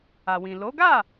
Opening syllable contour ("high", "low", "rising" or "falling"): low